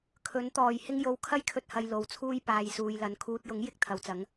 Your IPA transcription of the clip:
kʰ ɵ˨˥ n t̪ ɔː˨˩ j h ɪ˧ ŋ j o˨ w kʰ ɐ˥ j kʰ ɵ˧ t̚ h ɐ˨ j l o˨˥ w t͡sʰ uː˥ j p aː˨ j s uː˨ j l ɐ˨˥ n kʰ uː˨ t̚ j ʊ˨˥ ŋ j ɪ˥ k̚ t̪ʰ ɐ˨ w t͡s ɐ˨˥ ŋ

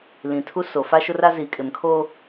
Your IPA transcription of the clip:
l ĩ˨ tʰ u˦ s o˨ f a˦ ʃ ʊ˦ r a˦ z i˨ kʼ ɪ˨ m kʰ o˦

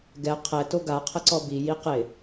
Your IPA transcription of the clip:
ɡ ɛ qʰ ɛ t o ɡ a qʰ ə ǀ ɔ b i j i q ɪ

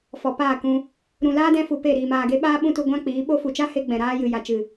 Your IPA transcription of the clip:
f ɔ˨ p aː˦˨ k ũ˧ | ɾ ũ˨ l aː˦ d ɛ̃˦ f u˧ p e˦˨ ɾ iː˨ m aː˨ ɡ e˧ ɓ aː˦ ɓ ũ˦ t u˧ ɡʷ ã˦ k͡p iː˨˦ ɓ o˦ f u˨ t͡ʃ a˦ h e˧ ɡ͡b ɛ̃˨ ɾ aː˦ j ɨ˨ j a˨ t͡ʃ ɨ˨

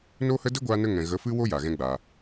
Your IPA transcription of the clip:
n o˦ h ə˦ d ə˦ ɡʷ aː˧ n ə˧ ŋ ɛ̃˨ ɣ ə˨˦ f ɨ˦ w o˦ j a˨ ɣ ɛ̃˦ ɡ͡b aː˧

